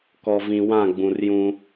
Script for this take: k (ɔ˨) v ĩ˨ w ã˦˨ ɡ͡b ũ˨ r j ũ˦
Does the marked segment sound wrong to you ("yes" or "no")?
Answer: no